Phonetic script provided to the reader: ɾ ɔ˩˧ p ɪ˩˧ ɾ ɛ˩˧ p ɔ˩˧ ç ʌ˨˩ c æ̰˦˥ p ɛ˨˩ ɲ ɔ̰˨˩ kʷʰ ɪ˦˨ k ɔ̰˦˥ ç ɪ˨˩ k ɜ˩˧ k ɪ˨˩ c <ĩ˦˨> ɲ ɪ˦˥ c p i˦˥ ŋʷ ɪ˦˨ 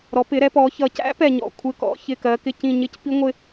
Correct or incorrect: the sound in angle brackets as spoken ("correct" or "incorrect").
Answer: correct